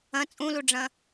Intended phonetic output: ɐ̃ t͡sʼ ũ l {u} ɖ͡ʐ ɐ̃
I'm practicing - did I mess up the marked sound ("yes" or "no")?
no